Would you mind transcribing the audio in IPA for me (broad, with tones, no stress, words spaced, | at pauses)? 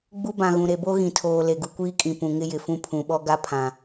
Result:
ɡ͡bu˦bã˨ɣũ˨ ɾe˨bo˦ ɣĩ˨tʰoː˨ le˨ɡu˨kʷiː˦kʼĩ˨ pũ˨ ŋɪ˦jɪ˨fũ˦ pʰũ˨ɓɔ˦ɡa˦ pʰã˨